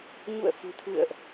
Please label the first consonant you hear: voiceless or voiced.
voiced